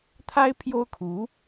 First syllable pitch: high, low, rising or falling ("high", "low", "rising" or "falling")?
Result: high